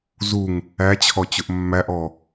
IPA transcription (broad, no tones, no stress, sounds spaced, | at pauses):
z u ŋ | æ t͡ɕʰ ɔ t͡ɕ ʊ ʔ mː æ ʔ ɔ